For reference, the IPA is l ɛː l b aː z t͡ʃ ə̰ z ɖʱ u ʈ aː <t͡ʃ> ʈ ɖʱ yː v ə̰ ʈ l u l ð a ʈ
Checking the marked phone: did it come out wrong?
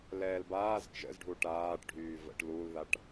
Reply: yes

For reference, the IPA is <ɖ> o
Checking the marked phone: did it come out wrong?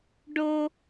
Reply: no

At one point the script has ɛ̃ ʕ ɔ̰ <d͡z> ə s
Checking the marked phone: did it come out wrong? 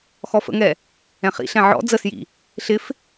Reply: no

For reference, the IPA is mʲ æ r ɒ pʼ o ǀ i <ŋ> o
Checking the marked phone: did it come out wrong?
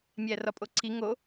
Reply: no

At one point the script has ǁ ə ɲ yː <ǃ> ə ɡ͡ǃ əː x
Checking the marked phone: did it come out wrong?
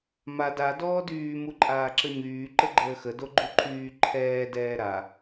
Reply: no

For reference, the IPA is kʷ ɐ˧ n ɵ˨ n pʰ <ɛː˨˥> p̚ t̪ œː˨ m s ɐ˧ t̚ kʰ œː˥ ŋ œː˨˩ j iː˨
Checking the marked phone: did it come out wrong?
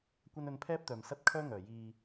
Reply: yes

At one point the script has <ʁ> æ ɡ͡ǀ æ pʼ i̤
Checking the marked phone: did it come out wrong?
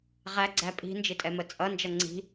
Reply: no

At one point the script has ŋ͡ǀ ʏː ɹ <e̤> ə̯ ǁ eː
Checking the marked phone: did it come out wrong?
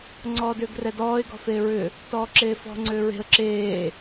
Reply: no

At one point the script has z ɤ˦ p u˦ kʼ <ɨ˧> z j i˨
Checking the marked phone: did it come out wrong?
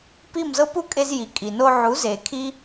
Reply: yes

